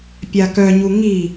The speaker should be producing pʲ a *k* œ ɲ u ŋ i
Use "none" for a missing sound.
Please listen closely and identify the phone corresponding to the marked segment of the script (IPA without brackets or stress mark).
k